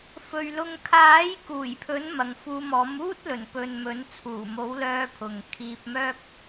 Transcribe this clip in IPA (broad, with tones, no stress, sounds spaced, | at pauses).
f ɵ˨ ɥ l ʊ˧ ŋ kʰ aː˨˥ j k uː˨˩ j pʰ ɵ˨˥ n m ɐ˨ ŋ f uː˧ m ɔː˨˥ m uː˥ t̚ l ɵ˨˩ n p ɵ˨ n m ɵ˨˥ n t͡sʰ uː˨˩ m o˨˥ w l œː˧ pʰ ʊ˨ ŋ kʰ iː˧ p̚ m œː˥ k̚